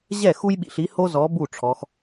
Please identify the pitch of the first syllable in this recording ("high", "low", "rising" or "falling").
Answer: falling